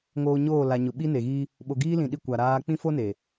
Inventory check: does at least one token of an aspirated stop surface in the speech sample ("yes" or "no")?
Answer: no